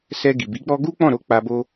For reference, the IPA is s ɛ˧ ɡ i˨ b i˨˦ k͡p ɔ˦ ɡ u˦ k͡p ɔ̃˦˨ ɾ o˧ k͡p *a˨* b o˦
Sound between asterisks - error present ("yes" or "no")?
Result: yes